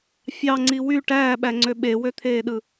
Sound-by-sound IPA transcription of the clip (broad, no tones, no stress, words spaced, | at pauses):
fʲɑŋ͡ǀi wy ʈæːɓæŋ͡ǀø ɓewøt̪ʰeːɗɯ